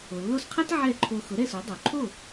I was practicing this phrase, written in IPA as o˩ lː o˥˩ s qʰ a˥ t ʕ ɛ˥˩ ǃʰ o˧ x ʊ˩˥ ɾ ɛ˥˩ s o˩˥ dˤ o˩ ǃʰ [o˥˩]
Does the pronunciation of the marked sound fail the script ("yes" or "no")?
no